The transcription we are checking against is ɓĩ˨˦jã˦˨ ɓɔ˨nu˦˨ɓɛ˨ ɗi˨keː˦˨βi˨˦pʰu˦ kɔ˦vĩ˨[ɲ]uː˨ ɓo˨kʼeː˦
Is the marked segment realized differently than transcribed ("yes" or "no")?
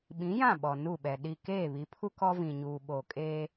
no